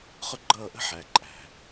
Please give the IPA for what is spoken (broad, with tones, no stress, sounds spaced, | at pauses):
χ ʊ˦ ɡ͡ǃ ʌː˦˨ ʔ ə̤˦ ħ æ˨ ǃʼ æ̤˨